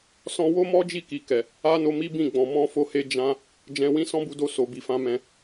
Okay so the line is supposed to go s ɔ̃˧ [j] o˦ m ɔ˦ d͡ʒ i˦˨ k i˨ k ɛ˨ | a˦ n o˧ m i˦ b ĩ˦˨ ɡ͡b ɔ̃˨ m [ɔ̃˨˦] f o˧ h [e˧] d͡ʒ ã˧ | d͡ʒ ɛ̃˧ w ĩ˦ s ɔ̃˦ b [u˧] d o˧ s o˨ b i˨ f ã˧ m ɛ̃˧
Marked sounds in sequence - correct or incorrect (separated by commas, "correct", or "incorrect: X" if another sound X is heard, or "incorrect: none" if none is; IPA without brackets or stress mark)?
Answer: incorrect: w, incorrect: ɔ̃˧, correct, correct